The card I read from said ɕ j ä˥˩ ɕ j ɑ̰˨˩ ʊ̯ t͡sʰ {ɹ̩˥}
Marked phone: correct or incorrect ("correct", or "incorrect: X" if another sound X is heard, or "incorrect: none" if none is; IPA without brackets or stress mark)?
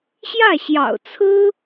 correct